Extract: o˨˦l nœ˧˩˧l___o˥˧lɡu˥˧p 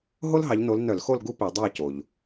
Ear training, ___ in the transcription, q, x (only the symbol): x